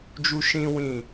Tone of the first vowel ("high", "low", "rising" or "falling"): high